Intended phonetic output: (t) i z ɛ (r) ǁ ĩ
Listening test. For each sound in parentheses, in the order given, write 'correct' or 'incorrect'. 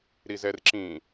incorrect, correct

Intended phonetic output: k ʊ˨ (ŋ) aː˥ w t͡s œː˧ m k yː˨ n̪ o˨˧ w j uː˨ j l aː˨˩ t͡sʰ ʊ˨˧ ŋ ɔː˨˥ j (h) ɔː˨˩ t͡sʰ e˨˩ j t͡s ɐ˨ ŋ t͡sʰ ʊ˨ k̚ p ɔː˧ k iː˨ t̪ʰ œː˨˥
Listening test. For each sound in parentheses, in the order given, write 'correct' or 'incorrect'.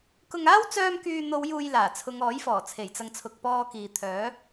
correct, incorrect

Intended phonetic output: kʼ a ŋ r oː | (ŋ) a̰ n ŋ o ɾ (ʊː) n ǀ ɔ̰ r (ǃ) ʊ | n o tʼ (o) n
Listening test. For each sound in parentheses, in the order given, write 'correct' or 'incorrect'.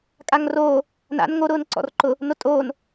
incorrect, correct, correct, incorrect

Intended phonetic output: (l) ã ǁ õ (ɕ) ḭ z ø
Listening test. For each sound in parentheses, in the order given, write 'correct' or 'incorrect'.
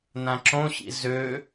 incorrect, correct

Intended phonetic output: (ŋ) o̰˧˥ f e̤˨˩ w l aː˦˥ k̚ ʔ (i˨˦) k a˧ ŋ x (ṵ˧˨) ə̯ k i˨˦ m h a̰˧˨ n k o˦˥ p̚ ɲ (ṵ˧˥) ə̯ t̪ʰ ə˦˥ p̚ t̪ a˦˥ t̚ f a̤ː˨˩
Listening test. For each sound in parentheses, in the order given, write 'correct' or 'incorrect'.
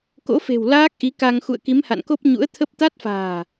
incorrect, correct, correct, correct

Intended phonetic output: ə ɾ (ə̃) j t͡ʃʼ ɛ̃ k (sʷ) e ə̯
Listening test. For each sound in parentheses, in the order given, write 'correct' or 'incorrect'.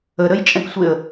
incorrect, correct

